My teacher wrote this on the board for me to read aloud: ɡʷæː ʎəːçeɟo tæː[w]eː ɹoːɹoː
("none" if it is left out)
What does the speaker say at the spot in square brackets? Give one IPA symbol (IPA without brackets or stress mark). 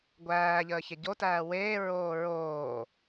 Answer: w